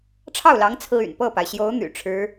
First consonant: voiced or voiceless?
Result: voiceless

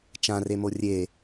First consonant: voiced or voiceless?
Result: voiceless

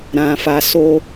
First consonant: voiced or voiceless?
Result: voiced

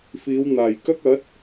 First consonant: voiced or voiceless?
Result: voiceless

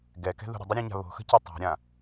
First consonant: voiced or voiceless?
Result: voiced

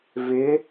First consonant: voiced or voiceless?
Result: voiced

